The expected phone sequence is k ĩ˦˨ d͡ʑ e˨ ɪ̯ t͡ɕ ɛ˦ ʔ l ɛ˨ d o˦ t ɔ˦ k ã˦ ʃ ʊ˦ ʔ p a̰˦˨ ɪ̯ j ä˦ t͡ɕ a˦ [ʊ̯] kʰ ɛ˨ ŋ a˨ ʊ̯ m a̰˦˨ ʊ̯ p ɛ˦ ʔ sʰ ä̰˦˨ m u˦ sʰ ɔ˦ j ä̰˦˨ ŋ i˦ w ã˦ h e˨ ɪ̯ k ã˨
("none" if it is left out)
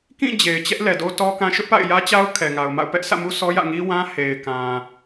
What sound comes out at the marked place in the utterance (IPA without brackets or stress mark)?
ʊ̯